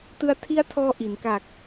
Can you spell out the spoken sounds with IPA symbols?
t ɯ˧ a̯ tʰ i˦˥ a̯ tʰ ɔː˧ ʔ i˩˦ n k a˨˩ k̚

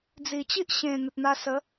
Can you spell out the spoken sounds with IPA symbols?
d͡z i˨˩ t͡ɕ i˦ ʔ ɕ ẽ˨˩ n̪ ə˨ t̚ n̪ a˧ s ə˨˦

